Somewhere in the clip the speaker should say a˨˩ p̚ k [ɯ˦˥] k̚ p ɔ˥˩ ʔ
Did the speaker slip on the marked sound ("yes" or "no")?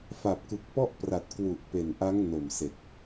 yes